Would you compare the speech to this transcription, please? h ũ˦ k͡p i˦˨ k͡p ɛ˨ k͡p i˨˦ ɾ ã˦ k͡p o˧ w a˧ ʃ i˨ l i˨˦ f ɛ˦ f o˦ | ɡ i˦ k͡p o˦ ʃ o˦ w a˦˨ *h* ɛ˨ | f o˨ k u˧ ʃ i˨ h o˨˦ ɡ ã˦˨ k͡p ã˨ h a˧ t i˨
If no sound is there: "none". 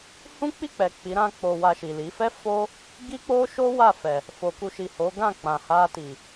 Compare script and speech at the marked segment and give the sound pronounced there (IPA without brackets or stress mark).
f